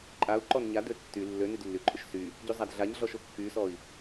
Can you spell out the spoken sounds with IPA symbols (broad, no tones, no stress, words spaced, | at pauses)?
ǃʼau̯ǃɔn ɲadø tːy lːønyd lːyǃʼʊʃ sy | ɟyzˤadɮaɲɮɔʃ okːysɔi̯